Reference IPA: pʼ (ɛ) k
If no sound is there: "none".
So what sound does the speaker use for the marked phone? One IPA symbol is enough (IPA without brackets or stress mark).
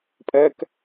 ɛ